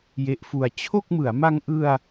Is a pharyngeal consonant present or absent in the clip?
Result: absent